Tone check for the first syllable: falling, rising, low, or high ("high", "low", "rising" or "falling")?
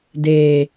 low